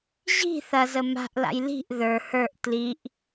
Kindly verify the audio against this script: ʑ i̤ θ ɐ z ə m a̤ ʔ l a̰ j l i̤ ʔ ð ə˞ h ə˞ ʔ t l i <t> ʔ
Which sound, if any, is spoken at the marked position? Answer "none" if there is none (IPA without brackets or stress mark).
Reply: none